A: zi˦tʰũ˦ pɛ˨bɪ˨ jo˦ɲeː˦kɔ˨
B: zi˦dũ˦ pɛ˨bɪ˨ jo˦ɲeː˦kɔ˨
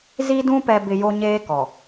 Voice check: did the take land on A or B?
B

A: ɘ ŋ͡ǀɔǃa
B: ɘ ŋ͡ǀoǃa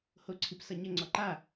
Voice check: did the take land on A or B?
A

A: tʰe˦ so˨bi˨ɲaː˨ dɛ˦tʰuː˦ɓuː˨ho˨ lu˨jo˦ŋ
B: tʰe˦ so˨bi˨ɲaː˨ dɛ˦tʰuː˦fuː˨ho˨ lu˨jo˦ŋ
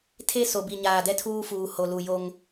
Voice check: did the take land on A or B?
B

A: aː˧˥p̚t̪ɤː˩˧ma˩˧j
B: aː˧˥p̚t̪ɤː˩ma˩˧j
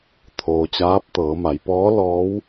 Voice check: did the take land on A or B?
A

